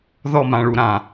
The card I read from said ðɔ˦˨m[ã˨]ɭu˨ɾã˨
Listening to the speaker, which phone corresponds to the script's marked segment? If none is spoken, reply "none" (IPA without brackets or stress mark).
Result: ã˨